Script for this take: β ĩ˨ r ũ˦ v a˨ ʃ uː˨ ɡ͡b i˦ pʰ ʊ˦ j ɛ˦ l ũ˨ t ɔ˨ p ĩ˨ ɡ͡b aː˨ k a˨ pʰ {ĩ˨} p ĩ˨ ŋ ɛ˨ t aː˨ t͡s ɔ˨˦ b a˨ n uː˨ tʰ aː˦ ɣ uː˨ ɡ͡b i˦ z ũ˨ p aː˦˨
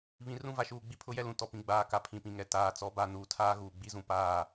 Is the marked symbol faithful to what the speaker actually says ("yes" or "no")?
yes